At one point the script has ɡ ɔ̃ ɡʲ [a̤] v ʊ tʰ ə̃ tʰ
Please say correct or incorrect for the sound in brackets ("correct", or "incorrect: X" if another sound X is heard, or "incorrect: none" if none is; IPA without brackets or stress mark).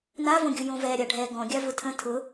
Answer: incorrect: a